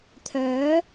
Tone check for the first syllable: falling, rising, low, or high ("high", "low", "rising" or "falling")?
rising